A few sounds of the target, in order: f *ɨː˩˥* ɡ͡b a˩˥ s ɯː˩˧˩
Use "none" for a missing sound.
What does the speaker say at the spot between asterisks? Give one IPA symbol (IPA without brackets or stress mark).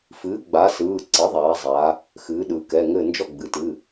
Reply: ɨː˩˥